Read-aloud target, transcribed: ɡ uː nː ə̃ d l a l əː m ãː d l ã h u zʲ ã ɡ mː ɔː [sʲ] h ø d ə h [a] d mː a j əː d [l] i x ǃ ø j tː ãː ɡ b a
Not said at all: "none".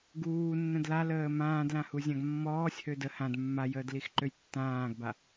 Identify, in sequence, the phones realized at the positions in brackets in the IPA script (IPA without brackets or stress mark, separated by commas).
sʲ, ã, l